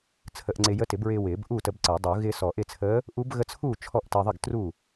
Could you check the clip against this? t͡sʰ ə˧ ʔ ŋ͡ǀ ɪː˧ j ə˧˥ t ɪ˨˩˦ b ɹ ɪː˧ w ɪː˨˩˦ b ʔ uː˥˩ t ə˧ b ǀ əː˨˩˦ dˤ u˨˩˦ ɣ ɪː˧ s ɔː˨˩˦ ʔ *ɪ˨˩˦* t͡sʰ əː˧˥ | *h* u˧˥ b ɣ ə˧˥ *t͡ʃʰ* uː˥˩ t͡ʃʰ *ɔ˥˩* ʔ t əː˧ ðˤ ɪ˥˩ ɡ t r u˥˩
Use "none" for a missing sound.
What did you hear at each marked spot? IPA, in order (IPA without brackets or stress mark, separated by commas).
ɪ˥˩, ʔ, t͡sʰ, ɔ˥˩